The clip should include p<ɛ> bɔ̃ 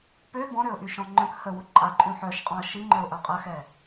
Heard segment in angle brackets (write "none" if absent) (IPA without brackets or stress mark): ø